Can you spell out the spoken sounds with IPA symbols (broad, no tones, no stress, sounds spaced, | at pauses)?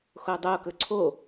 x o dˤ o k ɵ ǀʰ o